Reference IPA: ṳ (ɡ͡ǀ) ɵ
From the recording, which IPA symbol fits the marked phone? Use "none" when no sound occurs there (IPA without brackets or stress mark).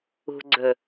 ɡ͡ǀ